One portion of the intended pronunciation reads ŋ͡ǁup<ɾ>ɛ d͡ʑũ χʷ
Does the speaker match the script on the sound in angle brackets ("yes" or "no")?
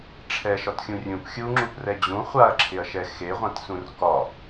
no